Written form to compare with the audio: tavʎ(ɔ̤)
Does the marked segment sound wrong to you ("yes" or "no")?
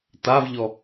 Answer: yes